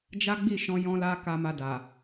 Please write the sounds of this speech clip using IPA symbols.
d͡ʒ a˦ ɡ͡b i˦˨ ʃ ɔ̃˧ j ɔ̃˦ l a˦ k a˧ m a˧ d a˨

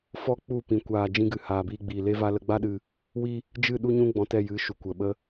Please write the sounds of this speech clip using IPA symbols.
f ɔ˦ k͡p u˦˨ p ĩ˨ kʷ aː˨ d͡ʒ ĩ˧ ɡ ɨ˨ h aː˨ b iː˧ ɡ͡b iː˨ l e˦ v a˦ l ə˧ ɡ͡b a˦ ɗ ɨ˧ | w i˦ | d͡ʒ ɨ˦˨ ɗ u˦ ɲ ũ˦ ɡ͡b ɔ̃˧ t ɛ˦˨ j ɨ˨˦ ʃ u˨ kʷ ə˨ ɓ ə˧

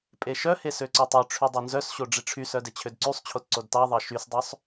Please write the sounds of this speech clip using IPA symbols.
pʼ e ʃ œ h e s ø ǀ œ tˤ œ ʈ͡ʂʰ y dˤ œ n z œ s ɕ o ɖ͡ʐ i ʈ͡ʂʰ y s œ d e t͡ɕʰ ø d ǀ y sˤ t͡ɕʰ o t ǀ o d t ɑ ðˤ ɑ ʃ y s dˤ œ sˤ

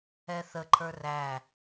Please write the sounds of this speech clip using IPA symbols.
ɛ θ ə ǃʰ ə˞ r æ

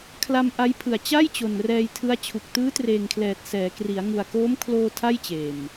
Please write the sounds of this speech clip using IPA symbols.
kʰ l a˧ m ʔ a˦˥ j pʰ ɯ˨˩ a̯ t͡ɕ a˥˩ j t͡ɕ o˨˩ n r ɛː˧ j tʰ ɯ˦˥ a̯ t͡ɕʰ u˨˩ k̚ t ɯː˦˥ t r eː˨˩ ŋ kʰ l ɛː˨˩ t̚ s ɛː˩˦ k r i˩˦ a̯ ŋ u˨˩ a̯ k oː˦˥ m kʰ l oː˧ tʰ a˥˩ j t͡ɕ eː˨˩ m

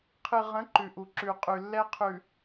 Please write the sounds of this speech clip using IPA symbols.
qʰ ɨ˨ ʁ ə̃˨˦ ǃ ʉ˨ ʔ u˨ ǁ ʉ˨ qʼ ʉ˨ lː ɛ˦ qʰ ʉ˨

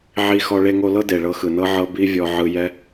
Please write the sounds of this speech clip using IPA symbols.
ʕ i˧ x ɔ˧ ɭ e˧ ŋ o˧ l ɤ˦ d e˨ ɭ ɤ˧ x ɯ˨ n ɤ˦ ʕ ɤ˦ b i˦ vʲ ɔ˧ ʕ ɯ˧ j ɛ˦

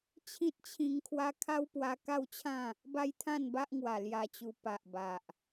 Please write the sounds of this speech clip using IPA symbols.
t͡ɕʰ ĩ˦ t̚ t͡ɕʰ ĩ˧ ŋ kʰ w a˦ kʰ a˦ w p w a˧ k a˥˧ w t͡ɕʰ ã˥˧ | b a˦ j t̪ʰ ã˥˧ n b a˦ ʔ ŋ w a˨˩ l j a˧ t͡ɕ u˧ p a˨ ʔ b a˨ ʔ

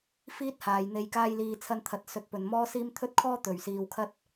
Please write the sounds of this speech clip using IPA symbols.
f iː˥ t̚ h aː˨ j n̪ e˧ j k aː˥ j l iː˧ t͡sʰ ɐ˧ n t̪ʰ ɐ˨ t̚ s ɵ˨˥ t̚ p ɵ˨˩ n m ɔː˥ s iː˥ m t̪ʰ ɵ˥ t̚ kʰ ɔː˥ t̪ ɵ˨˩ ɥ s iː˨ w kʰ ɐ˥ t̚

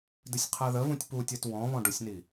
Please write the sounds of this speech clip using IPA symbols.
d ɨ sʲ qʰ ɜ ð ə v ũ tʲ p u tʲ ɜ t w ɔ̃ β ɔ̃ ɖ ʊ sʲ n i

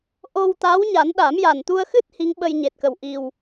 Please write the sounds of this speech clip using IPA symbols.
ʔ o˧ w t̪ a˧˥ w ɲ a˨˩˦ n ɗ a˨˩˦ m j a˨˩ n t̪ u˧ ə̯ x ɨ˦˥ t̚ h i˧˥ ŋ ɓ ə˧ j ɲ e˨˩ t̚ k ə˨˩ w ʔ i˨˩ w

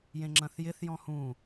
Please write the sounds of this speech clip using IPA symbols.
j ẽ ŋ͡ǁ ɐ̃ θ j ɪ θ j ɔ̃ h ũ

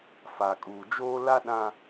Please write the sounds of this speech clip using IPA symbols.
f a˨ kʼ uː˨ d͡ʒ oː˦ l a˦ ɗ ã˦

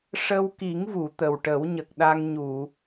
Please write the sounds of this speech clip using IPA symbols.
ʂ ə˧ w k i˨˩˦ ŋ v u˨˩˨ t̪ ə˨˩ w ʈ ə˨˩˦ w ɲ ə˨˩ k̚ ɗ a˧ ŋ ɲ u˨˩˨

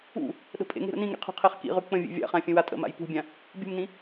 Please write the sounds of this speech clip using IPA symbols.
ṵ | ɗ ə̤ pʼ ḛ ŋ e̤ ɾ ə̰ n ĩ ŋ ḭ qʰ ṳ qʰ e χ k ḭ ʁ ʉ k͡p ə̃ vʲ ḛ vʲ a̰ χ ã fʲ ə̃ w a tʼ ə̰ m a̰ j p ṳ bʲ ã | bʲ ṳ m n ĩ

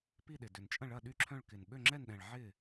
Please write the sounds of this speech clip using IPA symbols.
p i˥˩ ɗ ɪ˨˩ d ʏ˨˩ n t͡ʃʼ ɐ̃˥˩ ɭ ɐ˥˩ ɗ y˥˩ ǁʰ œ̃˥˩ ɭ k ɪ˨˩ n ɓ ø˥˩ ŋ͡ǁ ɛ˥˩ n ɗ ɛ̃˨˩ ɭ ʕ ɪː˥˩

